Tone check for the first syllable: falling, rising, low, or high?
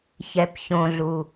low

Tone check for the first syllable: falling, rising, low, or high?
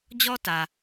high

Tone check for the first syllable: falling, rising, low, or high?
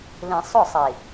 low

